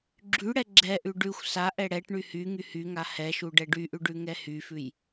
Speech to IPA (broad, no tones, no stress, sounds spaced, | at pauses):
ɡ͡ǁ y ɽ ɛ ɡ͡ǁ ɛ ʔ ʉ ɖ ʉ xʷ s a ʔ ɛ ɽ ɛ ʈ ɳ y h y ŋ y h y ŋ a h ɛ ʃ u ɖ ɛ ɖ y ʔ ʉ ɖ ʉ ŋ ɛ h y f ʉ j